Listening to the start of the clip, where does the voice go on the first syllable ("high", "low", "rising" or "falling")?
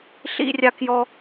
high